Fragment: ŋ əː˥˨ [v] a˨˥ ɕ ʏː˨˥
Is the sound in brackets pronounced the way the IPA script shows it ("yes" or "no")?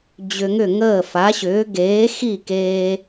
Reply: no